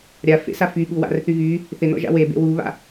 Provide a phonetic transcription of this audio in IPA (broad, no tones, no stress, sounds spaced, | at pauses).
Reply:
ɾʲ a f ḛ s a f y ɠ u w a̰ r θ y ɣ y | θ ɪ n ɔ̰ ʒ a̰ w e b ḛ w u β a̰